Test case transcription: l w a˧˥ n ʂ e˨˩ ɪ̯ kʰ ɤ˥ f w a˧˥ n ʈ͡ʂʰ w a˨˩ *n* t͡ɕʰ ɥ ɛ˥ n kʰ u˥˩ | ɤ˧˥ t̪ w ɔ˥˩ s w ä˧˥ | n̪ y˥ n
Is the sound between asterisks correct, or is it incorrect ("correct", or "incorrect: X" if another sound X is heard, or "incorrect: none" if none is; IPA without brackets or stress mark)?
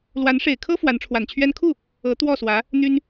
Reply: correct